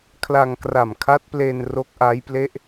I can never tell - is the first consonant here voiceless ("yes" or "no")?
yes